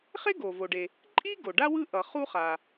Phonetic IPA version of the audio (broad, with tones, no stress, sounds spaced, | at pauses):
χ e˥ ɡ o˩ v o˩ ɖ e˩ | ǃʼ i˥ ɡ o˩ ɖ a˥ w ɯ˥ ʔ ʌ˩ χ u˥ χ a˩